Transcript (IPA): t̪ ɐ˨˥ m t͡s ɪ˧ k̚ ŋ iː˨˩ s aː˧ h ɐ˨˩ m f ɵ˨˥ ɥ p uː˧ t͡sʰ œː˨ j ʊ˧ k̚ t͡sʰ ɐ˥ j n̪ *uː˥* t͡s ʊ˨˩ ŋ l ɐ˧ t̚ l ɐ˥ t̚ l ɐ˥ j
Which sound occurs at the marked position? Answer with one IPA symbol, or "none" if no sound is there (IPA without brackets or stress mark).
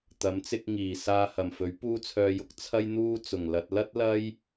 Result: uː˥